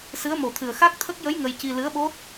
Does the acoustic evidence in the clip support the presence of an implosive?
yes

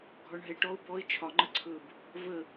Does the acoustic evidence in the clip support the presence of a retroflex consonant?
yes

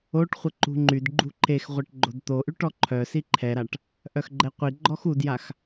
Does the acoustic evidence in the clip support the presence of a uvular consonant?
yes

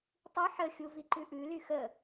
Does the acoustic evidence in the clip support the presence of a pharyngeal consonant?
yes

